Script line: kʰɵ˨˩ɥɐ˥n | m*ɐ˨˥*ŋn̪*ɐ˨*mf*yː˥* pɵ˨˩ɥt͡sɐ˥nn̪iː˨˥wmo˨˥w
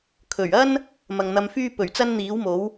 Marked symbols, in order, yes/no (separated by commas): no, no, yes